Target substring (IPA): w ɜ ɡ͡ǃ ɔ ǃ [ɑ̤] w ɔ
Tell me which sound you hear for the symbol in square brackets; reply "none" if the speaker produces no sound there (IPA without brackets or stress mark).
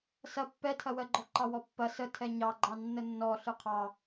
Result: ɑ